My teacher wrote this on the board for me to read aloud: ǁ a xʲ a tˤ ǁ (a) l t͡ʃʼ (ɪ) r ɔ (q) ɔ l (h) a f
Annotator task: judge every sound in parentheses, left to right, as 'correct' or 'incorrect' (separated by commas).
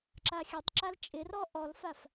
correct, correct, incorrect, incorrect